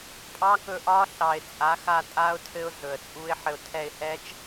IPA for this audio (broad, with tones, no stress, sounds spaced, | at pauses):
pʼ ɑ˦˥ k ɵ˦˨ ʔ ɒ˦˥ ɬ ɑ˨˩ ɪ̯ t͡sʼ a˩˥ x a˦˨ tʼ a˦˥ ʊ̯ tʰ ɘ˦˥ ʊ̯ ɮ ɵ˨˩ ə̯ t͡sʼ u˦˥ ɪ̯ ħ ɘ˦˨ ʊ̯ tʰ ɛ˦˨ ɪ̯ h ɛ˦˥ t͡ʃ